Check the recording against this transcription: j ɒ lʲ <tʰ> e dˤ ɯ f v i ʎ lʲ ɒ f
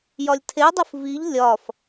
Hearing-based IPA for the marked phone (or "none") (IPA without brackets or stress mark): tʰ